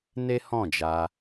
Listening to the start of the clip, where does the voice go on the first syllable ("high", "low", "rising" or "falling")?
high